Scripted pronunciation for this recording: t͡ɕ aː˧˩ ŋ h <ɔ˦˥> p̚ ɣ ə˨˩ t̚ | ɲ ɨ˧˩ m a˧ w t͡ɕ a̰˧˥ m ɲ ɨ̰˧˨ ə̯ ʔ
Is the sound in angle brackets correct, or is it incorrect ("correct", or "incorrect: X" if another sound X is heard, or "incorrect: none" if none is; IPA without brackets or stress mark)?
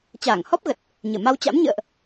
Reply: correct